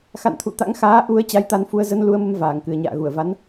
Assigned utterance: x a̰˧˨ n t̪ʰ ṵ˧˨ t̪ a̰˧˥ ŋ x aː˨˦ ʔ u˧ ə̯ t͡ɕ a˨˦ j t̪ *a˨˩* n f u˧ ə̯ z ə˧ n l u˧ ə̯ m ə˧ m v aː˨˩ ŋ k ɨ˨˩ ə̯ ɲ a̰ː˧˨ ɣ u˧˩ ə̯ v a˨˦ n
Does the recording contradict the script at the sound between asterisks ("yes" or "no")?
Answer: yes